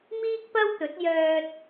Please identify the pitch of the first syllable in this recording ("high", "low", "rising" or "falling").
high